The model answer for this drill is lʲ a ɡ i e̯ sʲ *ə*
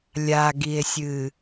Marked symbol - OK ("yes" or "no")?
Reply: no